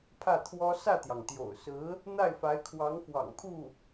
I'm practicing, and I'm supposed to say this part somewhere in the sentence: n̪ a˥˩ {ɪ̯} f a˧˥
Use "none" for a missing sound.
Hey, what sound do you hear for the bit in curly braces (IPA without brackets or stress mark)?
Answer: ɪ̯